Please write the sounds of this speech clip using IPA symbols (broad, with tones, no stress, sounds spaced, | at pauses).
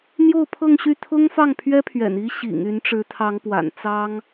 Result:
n̪ j o˥˧ ʊ̯ pʰ ɤ˥˧ ŋ ɕ y˥˩ t̪ʰ ʊ˥ ŋ f ɑ˥˩ ŋ pʰ ɥ ɛ˥ pʰ ɥ ɛ̰˨˩ n i˥ ɕ ḭ˨˩ ŋ y˧˥ n ʈ͡ʂ ɻ̩˧˥ t̪ʰ ɑ˧˥ ŋ p w a̰˨˩ n t͡s ɑ˥ ŋ